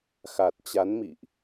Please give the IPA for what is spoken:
xa˨˩t̚t͡ɕa˨˦nmḭ˧˨ʔ

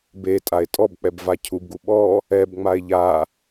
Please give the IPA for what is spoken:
betʼae̯ tʼɔbk͡pɛb vacʰubɡu ɓɔ | ɛbŋ͡mae̯ ʎa

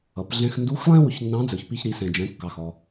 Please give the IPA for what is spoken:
ʌ˩˧pɮɛ̃˧x ndu˧˥xlˠɛ̃˥ wʊ˧çnːɑ̃˧˥d͡zə˞˩çpi˧ç ɾi˩˧sɛ̃˩d͡ʒɛ̃˩˧kːɑ˩ xɔ˩

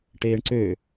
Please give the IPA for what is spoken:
ʈeːɳǀø

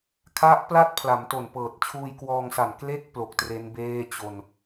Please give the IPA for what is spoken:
kʰa˦˥ʔpla˥˩t̚ pʰla˩˦mto˨˩npɤː˨˩t̚ t͡ɕʰuː˧jkwɔː˧ŋsa˨˩n kle˦˥k̚ plo˨˩k̚tre˦˥n beː˥˩ t͡ɕo˧n

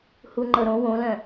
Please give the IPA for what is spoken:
huŋ͡ǃɤɾõ wõlœ̃

